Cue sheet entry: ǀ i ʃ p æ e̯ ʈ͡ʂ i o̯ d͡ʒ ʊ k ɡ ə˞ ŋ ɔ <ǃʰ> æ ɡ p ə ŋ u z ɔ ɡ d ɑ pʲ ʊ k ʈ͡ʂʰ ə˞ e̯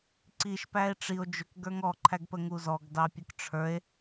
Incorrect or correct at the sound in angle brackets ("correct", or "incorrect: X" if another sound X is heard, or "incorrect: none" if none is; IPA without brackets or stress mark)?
correct